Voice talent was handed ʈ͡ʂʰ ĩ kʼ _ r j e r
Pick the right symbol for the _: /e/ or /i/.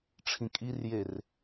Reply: i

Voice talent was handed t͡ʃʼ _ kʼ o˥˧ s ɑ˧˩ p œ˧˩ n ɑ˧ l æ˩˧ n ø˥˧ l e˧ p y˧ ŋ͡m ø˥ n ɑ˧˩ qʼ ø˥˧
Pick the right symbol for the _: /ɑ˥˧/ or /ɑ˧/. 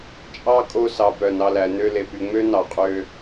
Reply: ɑ˥˧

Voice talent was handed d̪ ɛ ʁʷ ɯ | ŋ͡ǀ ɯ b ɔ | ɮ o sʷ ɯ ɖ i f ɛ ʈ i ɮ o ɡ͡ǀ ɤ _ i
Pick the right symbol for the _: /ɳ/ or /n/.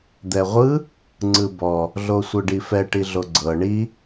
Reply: ɳ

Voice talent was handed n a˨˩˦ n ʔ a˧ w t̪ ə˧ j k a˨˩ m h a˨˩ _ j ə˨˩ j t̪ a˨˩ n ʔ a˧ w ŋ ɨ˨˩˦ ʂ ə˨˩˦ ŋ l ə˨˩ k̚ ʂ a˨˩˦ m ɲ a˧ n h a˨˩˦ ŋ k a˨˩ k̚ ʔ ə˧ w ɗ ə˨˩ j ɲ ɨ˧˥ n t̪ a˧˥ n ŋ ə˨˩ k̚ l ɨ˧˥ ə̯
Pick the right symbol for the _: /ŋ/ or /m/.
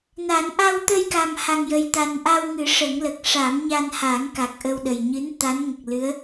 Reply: ŋ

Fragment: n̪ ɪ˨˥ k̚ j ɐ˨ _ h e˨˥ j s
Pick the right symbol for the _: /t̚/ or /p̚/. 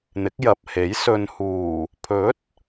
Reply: p̚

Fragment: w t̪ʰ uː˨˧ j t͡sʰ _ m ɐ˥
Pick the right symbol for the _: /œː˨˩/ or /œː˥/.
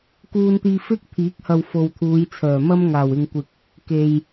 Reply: œː˨˩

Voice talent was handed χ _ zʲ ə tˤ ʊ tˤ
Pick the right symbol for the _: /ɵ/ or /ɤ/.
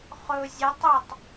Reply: ɵ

